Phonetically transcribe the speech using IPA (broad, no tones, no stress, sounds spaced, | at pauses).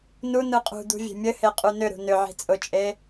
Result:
n u n ɯ qʼ ṳ d̪ ṳ vʲ e̤ mʲ ɘ h e qʼ u n ʏ ɾ ṳ n ʏ ʕ i̤ t͡sʼ ʊ t͡ʃʼ e